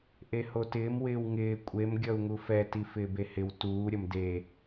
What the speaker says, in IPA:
ʔehotɪːm wɪːwŋɪː kʷʼem ɡʲʌu̯ŋufɛ tifɪːbehɪw tuː ɾʲʌmde

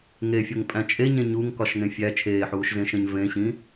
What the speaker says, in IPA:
ŋefʲoŋpʼæ̃ t͡ʃʼeɲẽ ɲuŋkɒʃŋẽ fʲæ t͡ʃʰeːħuːʃzẽʃẽɲ vẽɕĩ

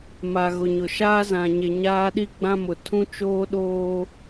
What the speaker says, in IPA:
ma˨ɣʊ˨ɲʊ˨ ʃaː˦zã˨ɲe˨ ɲaː˦ɗi˦ɡ͡bã˦mʊ˨ tʰũ˦t͡ʃoː˦ɗoː˦

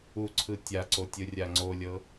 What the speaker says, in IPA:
uǀʰɯ tʲaǀo tʲɯrʲaŋ͡ǀolʲɤ

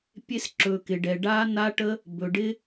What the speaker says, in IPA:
pʲe˧sǁɵ˨kɪ˨ɖɛ˨ ɖaː˦ na˦ʈə˦ | bɵ˨ɖɪ˧

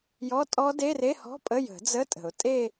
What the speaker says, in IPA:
jɔ˧˥˧tʼɔ˦˥ de˧˥˧re˧˥˧hɔ̤˧˥˧ pʼə˧˥˧jə̤˨˩˦d͡zə˧˥˧ tʼə̤˨˩˦ʊ̯ tʼe˥˧

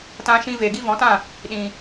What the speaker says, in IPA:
tã˧ʃĩ˧ ve˨ɡi˦ vɔ̃˨˦tã˦˨ | ɗĩ˨

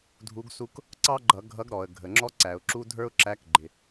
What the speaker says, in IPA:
dʱu˧˥ɡsu˥k | ǀɑ˥ɡ͡ǃʌ˧˩˧ ɡʱʌ˧˥ɡɾɔ˩ə̯ ɡʱə˩ŋ͡ǁɔ˥ǀæ˩ʊ̯ǁu˥ dʱə˞˥ʊ̯ǁæ˧˥kɡ͡ǃɪ˩

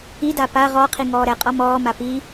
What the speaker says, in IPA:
ida pa ʁɔqʰi ŋɔːɾɛqʼɒ mɔːma pi

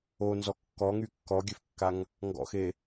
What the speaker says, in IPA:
onzɔ kːɔŋy kːɔɡʲøfkːaŋ | ŋɡɔ̰xe

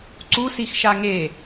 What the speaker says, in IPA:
ǀusix ʃaŋe

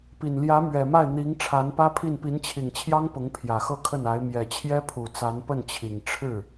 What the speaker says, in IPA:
pi˨˩nljä˧˥mɥɛ˨˩ma˥˩ɪ̯ n̪i˧˥ŋ ʈ͡ʂʰa˧˥npä˥pʰi˥˩n pi˧˥nt͡ɕʰi˨˩ŋt͡ɕʰjɑ˥ŋ pʊ˧˥ŋpʰjä˨˩xɤ˥˧kʰə˥˩n a˧˥ɪ̯ mjɛ˨˩t͡ɕʰjɛ˥pʰu˨˩ t͡sa˧˥npə˥˩nt͡ɕʰi˨˩ŋ ʈ͡ʂʰɻ̩˥˩

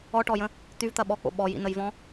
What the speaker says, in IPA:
ɔʈɔjə̃ | t̪yvt̪ɐ ɓɔk͡po̰ ɓɔjḭnəjvɔ̃

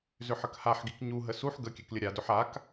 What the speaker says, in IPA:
zʏħəkhaħɡik ɲuɦə suħ ɡə kʲɛklʲəɾʲadʏħ ak

